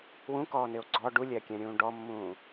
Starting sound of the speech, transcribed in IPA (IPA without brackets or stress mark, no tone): w